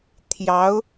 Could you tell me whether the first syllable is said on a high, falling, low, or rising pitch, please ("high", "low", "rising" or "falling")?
rising